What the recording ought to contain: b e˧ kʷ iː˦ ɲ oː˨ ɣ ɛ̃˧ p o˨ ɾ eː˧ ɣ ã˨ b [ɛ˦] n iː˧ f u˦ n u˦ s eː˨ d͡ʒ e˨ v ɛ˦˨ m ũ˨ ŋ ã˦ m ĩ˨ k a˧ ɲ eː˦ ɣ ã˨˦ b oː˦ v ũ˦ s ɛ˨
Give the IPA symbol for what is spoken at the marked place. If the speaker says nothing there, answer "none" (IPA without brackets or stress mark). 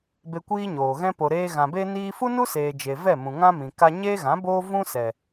e˦